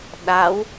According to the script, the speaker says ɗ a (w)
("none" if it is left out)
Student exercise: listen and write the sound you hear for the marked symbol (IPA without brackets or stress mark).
w